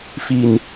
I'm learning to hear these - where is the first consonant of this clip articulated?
lips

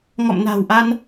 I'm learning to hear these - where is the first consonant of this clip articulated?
velum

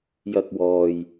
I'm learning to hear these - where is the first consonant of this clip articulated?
palate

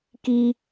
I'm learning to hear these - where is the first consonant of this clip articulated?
velum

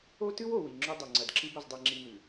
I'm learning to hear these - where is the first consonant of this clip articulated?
tongue tip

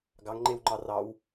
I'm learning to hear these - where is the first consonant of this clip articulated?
velum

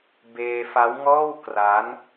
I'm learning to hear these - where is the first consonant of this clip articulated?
lips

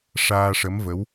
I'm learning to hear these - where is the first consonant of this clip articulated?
retroflex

